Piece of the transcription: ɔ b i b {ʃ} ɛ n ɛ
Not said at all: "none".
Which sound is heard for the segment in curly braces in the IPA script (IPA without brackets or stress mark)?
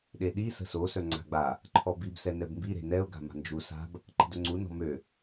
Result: s